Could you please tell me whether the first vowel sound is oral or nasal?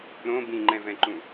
nasal